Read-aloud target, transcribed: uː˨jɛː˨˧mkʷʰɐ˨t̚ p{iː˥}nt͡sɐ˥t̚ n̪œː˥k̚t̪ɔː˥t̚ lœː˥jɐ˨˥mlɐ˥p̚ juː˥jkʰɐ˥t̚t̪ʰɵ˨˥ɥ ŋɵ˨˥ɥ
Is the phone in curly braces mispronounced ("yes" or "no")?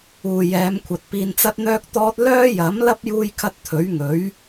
yes